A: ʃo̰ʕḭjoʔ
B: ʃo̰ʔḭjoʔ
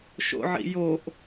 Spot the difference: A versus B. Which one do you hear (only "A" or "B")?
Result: A